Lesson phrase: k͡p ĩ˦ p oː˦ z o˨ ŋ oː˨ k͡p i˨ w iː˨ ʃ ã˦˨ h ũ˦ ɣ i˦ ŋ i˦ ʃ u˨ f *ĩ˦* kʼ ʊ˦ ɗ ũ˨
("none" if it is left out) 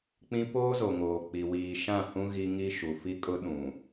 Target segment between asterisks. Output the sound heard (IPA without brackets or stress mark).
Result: i˦